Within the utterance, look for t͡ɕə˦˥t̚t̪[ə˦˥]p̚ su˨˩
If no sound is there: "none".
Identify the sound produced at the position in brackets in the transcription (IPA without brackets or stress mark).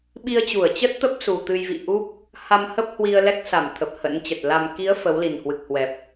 ə˦˥